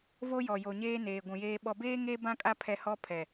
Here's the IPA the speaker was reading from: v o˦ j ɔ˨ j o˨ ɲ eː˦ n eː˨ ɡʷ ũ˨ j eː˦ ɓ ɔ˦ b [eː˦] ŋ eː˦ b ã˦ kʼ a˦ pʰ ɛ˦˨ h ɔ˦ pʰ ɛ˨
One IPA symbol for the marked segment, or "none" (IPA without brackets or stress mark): eː˦